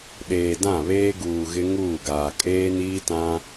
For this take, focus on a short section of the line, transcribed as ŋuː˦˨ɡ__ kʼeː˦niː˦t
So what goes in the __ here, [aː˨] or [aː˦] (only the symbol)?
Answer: aː˨